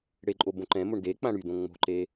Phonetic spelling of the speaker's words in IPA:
ɽ e ǃʼ o b õ ǃ ɛ̃ m o ɳ d e k͡p ã ɽ y d õ ŋ͡m o̤ ǃ e

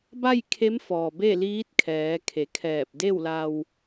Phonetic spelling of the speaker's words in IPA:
b a˥˨ j kʰ e˧˥ m f ɔː˩ b e˥˨ l iː˧˥ t̚ kʰ ɛː˩˧ kʰ e˩˧ kʰ ɛː˧˩ p̚ d e˥˨ w l a˧ w

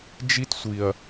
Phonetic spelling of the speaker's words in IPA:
d͡ʒ i˦ t sʷ i˨ ɐ̯

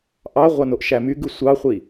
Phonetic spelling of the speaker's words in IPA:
ʔ ɑ ʁʷ ɑ n o ʔ ʃ æ m y ɡ ɯ sʷ ɑ χʷ i

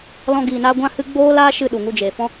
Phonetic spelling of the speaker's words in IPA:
l ɔ̃˦ ɡ iː˧ n a˦ ɡʷ ã˦ h ɨ˦ ɡ͡b oː˦ l aː˦ ʃ ɨ˧ ɗ u˨ ŋ u˧ d͡ʒ eː˨ f ɔ̃˦

